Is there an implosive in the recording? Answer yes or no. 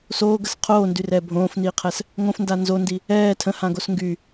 no